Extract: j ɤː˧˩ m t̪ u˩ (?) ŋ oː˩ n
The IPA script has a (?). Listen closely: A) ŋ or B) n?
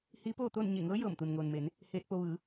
B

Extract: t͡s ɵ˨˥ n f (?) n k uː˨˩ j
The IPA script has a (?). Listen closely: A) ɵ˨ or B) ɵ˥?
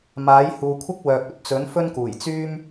B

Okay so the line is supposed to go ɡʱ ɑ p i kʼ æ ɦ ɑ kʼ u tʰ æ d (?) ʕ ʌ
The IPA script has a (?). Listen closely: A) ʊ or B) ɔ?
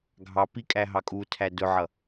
A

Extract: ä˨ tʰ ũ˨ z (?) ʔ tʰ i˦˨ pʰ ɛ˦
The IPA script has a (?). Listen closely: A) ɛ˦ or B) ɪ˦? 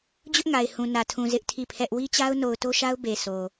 B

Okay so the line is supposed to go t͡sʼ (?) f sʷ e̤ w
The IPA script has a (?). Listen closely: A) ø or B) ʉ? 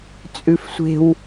B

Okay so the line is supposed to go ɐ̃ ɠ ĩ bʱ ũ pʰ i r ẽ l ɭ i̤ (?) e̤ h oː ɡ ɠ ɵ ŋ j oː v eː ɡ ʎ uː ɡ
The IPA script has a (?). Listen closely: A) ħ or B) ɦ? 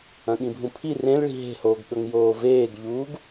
B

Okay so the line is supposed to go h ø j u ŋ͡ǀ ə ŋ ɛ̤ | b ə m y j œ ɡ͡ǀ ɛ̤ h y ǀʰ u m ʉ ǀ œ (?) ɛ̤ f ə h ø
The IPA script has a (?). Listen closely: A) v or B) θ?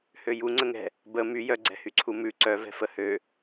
A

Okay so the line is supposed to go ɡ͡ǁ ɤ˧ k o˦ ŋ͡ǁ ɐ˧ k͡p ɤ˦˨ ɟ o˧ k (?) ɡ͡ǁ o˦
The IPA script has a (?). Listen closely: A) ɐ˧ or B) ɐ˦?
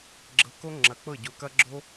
B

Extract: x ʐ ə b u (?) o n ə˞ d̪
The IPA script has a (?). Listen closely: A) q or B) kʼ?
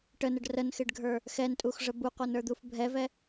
A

